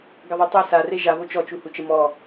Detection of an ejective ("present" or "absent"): absent